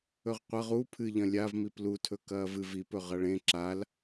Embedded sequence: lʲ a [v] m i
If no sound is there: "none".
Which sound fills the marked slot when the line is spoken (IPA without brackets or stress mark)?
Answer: v